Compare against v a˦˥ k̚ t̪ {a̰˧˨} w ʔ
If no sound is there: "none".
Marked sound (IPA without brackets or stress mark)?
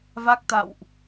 a̰˧˨